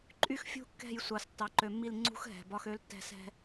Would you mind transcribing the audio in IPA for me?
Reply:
ǃʼ y˦ x fʲ ṳ˦ kː ɛ̤˦˨ j sʷ ɑ˨ s tː ɑ˨ ǃ ø˨ mː i˦˨ l ŋ͡ǀ ṳ˦ x ɦ ɛ̤˨ b ɒ˦ x ø˦ l tː ɛ̤˦ s ɛ̤˦

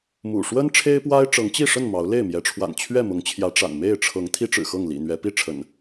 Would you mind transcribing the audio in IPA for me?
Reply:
m ṵ˨˩ ʂ w ə˦ n ʈ͡ʂʰ e˦ ɪ̯ p w a˦ ɪ̯ ʈ͡ʂ ɤ˨˦ ŋ t͡ɕ i˥˨ ʂ ə˥˨ n m ɑ˨˦ ʊ̯ l e˥˨ ɪ̯ m j ɛ˨˦ ʈ͡ʂʰ w a̰˨˩ n t͡ɕʰ ɥ ɛ˥˨ m ʊ˨˦ ŋ t͡ɕʰ j ä˨˦ ʈ͡ʂ a̰˨˩ n m e˥˨ ɪ̯ ʈ͡ʂʰ ɤ˨˦ ŋ t̪ʰ i˦ ʈ͡ʂ ɻ̩˨˩ x ɤ˥˨ ŋ l ḭ˨˩ n̪ ɥ ɛ˨˦ p i˥˨ ʈ͡ʂʰ ə̰˨˩ n

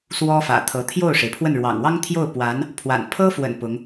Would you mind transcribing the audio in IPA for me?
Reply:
s w ɔ˥ f ä̰˨˩ t̪ʰ ɤ˧˥ t̪ʰ j o˥˩ ʊ̯ ʂ e˩ ɪ̯ pʰ w ə˥˩ n ɻ w ɑ̰˨˩ ŋ w ɑ˥ ŋ t̪ʰ j o˥˩ ʊ̯ p w a˧˥ n | pʰ w a̰˨˩ n pʰ ɤ˥ f w ə̰˨˩ n p ʊ˧˥ ŋ

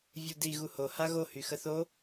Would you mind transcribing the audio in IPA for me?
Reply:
vʲ u d i ɣ u h o h a ɣ o h y x ə θ o

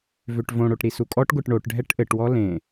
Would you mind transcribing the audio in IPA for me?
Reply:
v ø ʈ v õ ɽ o ʈ ɾ i s u kʼ ɔ ʈ ɡʷ ɛ ʈ ɳ o ʈ ɖʱ ɛ ʈ ʔ ɘ ʈ w ɔ l ẽ

